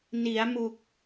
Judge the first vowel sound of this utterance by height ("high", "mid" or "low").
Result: high